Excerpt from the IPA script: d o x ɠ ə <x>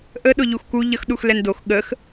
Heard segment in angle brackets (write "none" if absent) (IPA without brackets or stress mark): x